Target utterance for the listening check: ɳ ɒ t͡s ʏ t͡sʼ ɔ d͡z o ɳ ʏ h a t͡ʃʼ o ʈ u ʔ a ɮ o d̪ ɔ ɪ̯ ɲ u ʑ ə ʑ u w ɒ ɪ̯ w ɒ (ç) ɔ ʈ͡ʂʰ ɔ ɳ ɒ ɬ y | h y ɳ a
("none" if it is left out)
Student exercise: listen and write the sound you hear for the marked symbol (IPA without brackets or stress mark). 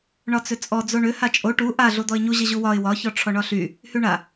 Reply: ç